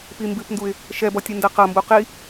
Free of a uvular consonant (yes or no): no